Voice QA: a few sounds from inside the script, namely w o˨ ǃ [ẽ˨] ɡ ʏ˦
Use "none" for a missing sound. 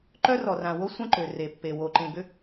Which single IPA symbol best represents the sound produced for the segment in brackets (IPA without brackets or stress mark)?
ẽ˨